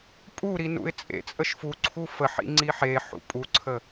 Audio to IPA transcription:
pʼuɾi nṵɪ̯t͡sʼḛt͡sʼəʃ fuǀʰu fəħḭ ŋ͡ǀiħeħṵ pʼuǀʰə

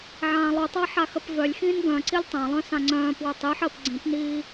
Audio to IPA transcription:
ʕãːlˠutˤa ħaxəpvœlʲxĩːn ɡœ̃ǀilʲ tˤãlˠœ̃ sãŋ͡ǀœ̃ːpwø tˤiħəːp ɡ͡ǀĩpniː

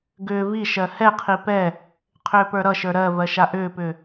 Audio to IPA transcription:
ɡʏː viʃɜ hɛqʰi pɛ | qʰʏːpə˞ɾʌʃə˞ ɾɜvɜ ʃaʔʏːpʏː

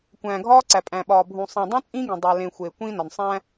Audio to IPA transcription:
kʷæ̃ː˨ɡʱɒː˦ǀæ˨ pʼæ̃˨ɓɒː˨bʱũ˨ sˤĩ˨dˤũ˦ t͡sʼĩː˦ɡĩ˨ dˤæ˨ lẽ˨ xʷeː˨kʷĩː˦nɒ˨n sˤæ̃˦

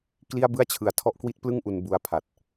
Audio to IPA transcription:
kli˥˩a̯bɯ˥˩a̯t͡ɕʰɯ˨˩a̯ tʰɔ˦˥ʔkwi˦˥t̚plɯ˥˩ŋ ʔu˧nbu˧a̯pʰa˨˩t̚

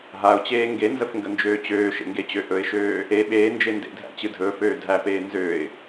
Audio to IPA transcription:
ɦaʊ̯t͡ɕeː ŋɡenzəfŋɡənd͡ʒøː t͡ɕøːʃḛŋɡet͡ɕø ʔɵɪ̯ʃøː | e ɓeːnd͡ʒe ndḛdʱæ̰t͡ɕɨ dʱɵːføː dʱæpeː nzøɪ̯

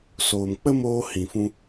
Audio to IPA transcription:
soː˨mk͡pə˦moː˧ hĩ˨fũ˧

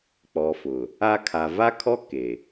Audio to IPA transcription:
k͡pɔ˨fʊ˨ | a˦ kʰa˨va˦kʰɔ˦ ke˨

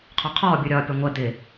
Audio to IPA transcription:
qʰɔqʰɔːbʲuɾʲɒː pʲʌŋʷɛ d̪ɪ

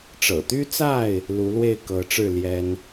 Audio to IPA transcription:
ʈ͡ʂɤ̰˨˩t̪y˦t͡sa˥˨ɪ̯ | lu˨˦lwe˥˨ɪ̯ kɤ˨˦ʈ͡ʂɻ̩˥˨ ljɛ˦n

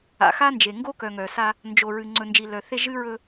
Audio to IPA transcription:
a̰˨xa˦nd͡ʒe˨ ŋɡo˦kœ˨ŋœ˨sa˦ | nd͡ʒo˨ɹɨ˨ ŋ͡ǀɵ˨nd͡ʒi˨lœ˨θe˦ ʒɨ˦ɹɵ˦

